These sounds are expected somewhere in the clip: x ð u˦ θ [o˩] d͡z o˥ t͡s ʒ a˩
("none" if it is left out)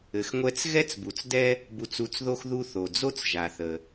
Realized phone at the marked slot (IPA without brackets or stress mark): o˩